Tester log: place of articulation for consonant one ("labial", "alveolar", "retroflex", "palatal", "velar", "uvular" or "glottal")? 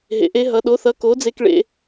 glottal